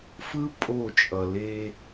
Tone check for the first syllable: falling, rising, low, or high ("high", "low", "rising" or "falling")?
high